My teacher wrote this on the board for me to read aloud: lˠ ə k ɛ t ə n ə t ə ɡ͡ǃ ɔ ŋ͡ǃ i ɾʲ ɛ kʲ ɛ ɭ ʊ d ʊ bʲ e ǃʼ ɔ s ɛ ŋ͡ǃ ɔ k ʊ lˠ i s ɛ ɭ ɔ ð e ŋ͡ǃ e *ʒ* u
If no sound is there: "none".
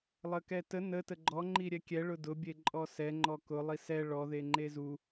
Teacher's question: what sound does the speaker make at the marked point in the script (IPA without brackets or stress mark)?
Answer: z